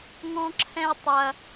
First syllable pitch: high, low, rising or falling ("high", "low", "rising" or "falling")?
high